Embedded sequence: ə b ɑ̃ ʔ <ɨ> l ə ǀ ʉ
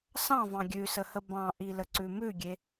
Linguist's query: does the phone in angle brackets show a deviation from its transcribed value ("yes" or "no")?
yes